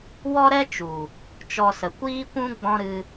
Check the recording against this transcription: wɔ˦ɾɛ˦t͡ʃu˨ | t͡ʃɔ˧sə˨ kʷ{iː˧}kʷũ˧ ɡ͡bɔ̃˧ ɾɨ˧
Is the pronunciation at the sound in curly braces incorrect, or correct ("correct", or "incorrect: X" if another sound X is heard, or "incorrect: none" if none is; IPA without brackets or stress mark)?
correct